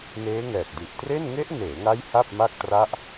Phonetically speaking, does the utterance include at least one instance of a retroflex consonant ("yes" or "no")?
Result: no